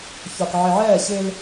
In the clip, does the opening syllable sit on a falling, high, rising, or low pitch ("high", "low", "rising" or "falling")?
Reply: low